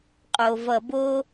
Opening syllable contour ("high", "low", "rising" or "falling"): low